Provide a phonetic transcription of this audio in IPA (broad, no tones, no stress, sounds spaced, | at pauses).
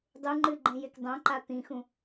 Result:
dˤ u ŋ͡ǃ ɨ ɡ͡ǃ ẽ j e k dˤ õ ǃ a t̪ ĩ x ũ